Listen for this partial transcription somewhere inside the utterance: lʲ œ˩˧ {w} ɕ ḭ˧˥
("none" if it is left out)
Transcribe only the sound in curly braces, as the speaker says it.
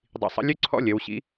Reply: w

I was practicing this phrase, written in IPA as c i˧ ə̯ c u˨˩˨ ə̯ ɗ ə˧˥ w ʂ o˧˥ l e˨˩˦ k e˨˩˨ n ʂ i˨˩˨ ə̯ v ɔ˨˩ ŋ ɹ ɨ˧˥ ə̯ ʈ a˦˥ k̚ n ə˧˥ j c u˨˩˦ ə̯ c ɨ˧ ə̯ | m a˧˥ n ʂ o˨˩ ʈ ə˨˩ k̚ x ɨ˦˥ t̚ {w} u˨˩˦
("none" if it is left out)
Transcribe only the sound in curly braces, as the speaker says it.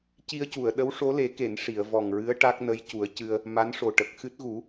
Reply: ɣ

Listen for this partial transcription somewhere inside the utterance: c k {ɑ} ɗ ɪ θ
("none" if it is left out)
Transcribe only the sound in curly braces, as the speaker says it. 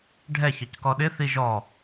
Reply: ɔ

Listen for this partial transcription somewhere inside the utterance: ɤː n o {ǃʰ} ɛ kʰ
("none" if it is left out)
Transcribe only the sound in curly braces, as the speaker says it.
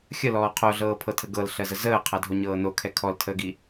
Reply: kʰ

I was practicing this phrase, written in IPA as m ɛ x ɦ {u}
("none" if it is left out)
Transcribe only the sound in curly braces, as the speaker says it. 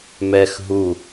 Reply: u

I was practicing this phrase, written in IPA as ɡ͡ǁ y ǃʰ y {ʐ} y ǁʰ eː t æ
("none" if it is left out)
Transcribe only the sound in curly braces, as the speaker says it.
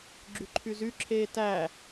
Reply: z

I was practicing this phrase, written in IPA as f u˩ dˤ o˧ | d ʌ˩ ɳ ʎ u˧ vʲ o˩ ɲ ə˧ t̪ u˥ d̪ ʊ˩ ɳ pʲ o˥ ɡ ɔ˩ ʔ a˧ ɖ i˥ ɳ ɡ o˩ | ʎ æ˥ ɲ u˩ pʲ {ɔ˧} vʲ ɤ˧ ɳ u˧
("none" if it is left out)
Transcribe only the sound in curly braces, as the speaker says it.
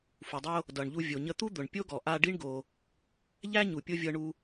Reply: o˧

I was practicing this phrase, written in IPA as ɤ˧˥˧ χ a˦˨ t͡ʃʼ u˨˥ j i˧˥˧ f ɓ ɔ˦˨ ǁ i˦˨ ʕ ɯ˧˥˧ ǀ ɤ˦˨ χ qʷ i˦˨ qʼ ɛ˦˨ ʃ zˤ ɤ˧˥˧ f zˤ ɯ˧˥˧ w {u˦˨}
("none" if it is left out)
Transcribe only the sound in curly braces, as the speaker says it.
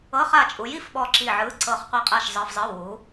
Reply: u˨˥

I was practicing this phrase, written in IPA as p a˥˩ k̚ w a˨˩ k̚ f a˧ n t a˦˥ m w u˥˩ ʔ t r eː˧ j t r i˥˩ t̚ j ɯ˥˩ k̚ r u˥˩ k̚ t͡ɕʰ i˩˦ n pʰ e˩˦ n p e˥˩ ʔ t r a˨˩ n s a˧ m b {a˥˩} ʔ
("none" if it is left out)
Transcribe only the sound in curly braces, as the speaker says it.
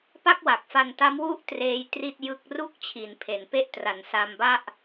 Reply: a˥˩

